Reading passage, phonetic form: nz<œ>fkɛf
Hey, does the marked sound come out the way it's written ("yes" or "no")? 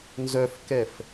yes